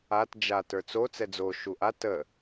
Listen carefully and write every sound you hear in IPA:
a t d͡ʒ a t ə˞ t͡s o t͡s ɛ d͡z o ʃ u ʔ a t ə

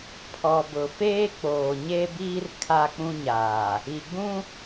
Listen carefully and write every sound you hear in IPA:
pʰ ɔ˨ b ʊ˨ f eː˦ k͡p oː˨ ɲ e˦ b iː˦ r kʰ a˦ k͡p ũ˦ ɲ aː˨ | i˨ ɡ͡b ũ˦

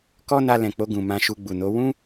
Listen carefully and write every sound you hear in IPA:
k ɔ˦ n a˧ l ɛ̃˨ k͡p o˧ ɡ ũ˨ m ã˧ ʃ u˧ ɡ͡b u˨ n o˨˦ w ũ˦

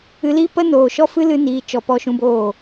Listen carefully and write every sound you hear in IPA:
ɨ˧ l i˦ p ə˦ n oː˨ ʃ ɔ˦ f ɨ˦ l ɨ˧ n iː˧ t͡ʃ ɔ˧ p ɔ˧ ʃ ũ˧ b oː˦˨

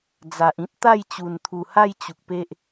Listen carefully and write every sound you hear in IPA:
d͡z a˨ ʔ ĩ˦ t̚ t̪ a˥˧ j t͡ɕ u˨˩ n t̪ʰ u˨˩ h a˥˧ j t͡ɕ u˨ k̚ p e˦ ʔ

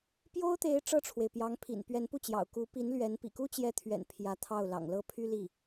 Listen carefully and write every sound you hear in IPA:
p j o˥ ʊ̯ t̪ e˧˥ ɪ̯ ʈ͡ʂ ɤ˥˩ ʈ͡ʂʰ w e˩ ɪ̯ p j ɑ˧˥ ŋ pʰ ḭ˨˩ n p ɥ ɛ˧˥ n p u˥˩ t͡ɕ j ɑ̰˨˩ ʊ̯ k u˧˥ p i˧˥ n l ɥ ɛ˧˥ n p ḭ˨˩ k u˥ t͡ɕ j ɛ˧˥ t̪ʰ ɥ ɛ̰˨˩ n pʰ j ä˧˥ t̪ʰ ɑ˥˩ ʊ̯ l ɑ̰˨˩ ŋ l ɤ˥ pʰ y˥ l i˥˩

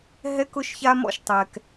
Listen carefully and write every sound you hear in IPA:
ɦ ɛ˦ k ʊ˦ ʃ ç a˦ m ɔ̰˦˨ ʃ tˤ ɛ˨ k

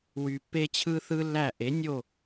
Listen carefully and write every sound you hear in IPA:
w y˩ pː e˥ t͡ɕʰ ɯ˥ θ ɯ˥ lː æ˥˩ ʔ e˩˥ nʲ o˥˩

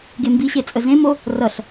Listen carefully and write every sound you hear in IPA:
ɡ e m b i ɕ e t͡sʼ ə z ẽ m o | r ʌ ɬ

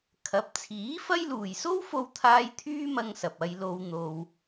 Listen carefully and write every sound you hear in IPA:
kʰ ɐ˨˥ p̚ t͡sʰ iː˨˥ f ɐ˥ j l uː˨ j s o˥ w f o˧ w t̪ʰ aː˧ j t̪ʰ yː˥ m ɐ˧ ŋ s ɐ˨ p̚ ɐ˧ j l o˧ w n̪ o˧ w

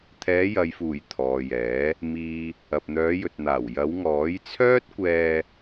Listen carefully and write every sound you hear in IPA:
t̪ʰ ɛː˨˧ j ɐ˨ j f uː˨˩ j t̪ʰ ɔː˨ j ɛː˨˥ | m iː˨ | ɐ˨ p̚ n̪ œː˨˧ j ɵ˨ t̚ n̪ aː˨˩ w j ɐ˨˧ w ŋ ɔː˨˥ j t͡sʰ œː˥ t̚ kʷ ɛː˧

